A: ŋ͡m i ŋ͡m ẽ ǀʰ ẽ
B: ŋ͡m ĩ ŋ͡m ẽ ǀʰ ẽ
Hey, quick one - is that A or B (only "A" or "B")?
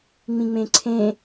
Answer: B